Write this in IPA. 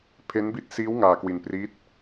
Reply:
pʰ e˦˥ n b i˦˥ t̚ s iː˦˥ w ŋ aː˧ k w i˧ n p r i˦˥ t̚

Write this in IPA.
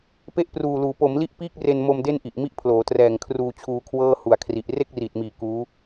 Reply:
p e˥˩ ʔ p r uː˨˩ l uː˩˦ p o˩˦ m l i˦˥ ʔ p iː˥˩ k̚ r e˧ n m o˧ m d e˥˩ n ʔ i˨˩ ʔ m i˥˩ ʔ pʰ l oː˩˦ t r ɛː˨˩ ŋ kʰ r uː˧ t͡ɕʰ uː˧ kʰ w ɤː˥˩ h u˨˩ a̯ kʰ r i˨˩ ʔ r e˥˩ k̚ r iː˨˩ t̚ m iː˨˩ k uː˦˥

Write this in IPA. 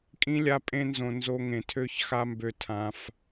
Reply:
kʼ ĩ˧ lʲ a˧ pʼ ẽ˧ n z õ˨ n z o˧ ŋ ẽ˨ tʰ ø˦ ç x a˦ m b ø˧ tʰ ã˧ f

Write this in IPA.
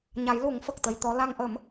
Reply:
ɲ a˨˩˦ j l u˨˩˦ ŋ f ə˨˩ k̚ t̪ ə˧ j t̪ ɔ˧˥ l a˧ ŋ ʔ əː˨˩˦ m

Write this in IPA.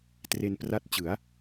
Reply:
t r e˧ n p r a˦˥ t̚ t͡ɕ ɯ˩˦ a̯

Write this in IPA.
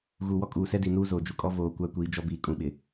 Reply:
ɣ uː˨ w ɔ˦ kʼ uː˨ s ɛ˦ d i˨ n uː˦ z oː˨ d͡ʒ u˨ kʼ ɔ˦ v oː˨ kʷ a˦ kʷ i˨˦ d͡ʒ ɔ˦ b iː˨ kʼ ũ˨ ɓ ɪ˨

